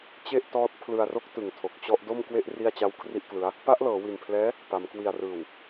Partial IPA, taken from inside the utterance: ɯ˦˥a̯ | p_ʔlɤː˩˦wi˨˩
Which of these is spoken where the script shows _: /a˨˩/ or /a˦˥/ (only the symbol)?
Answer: a˦˥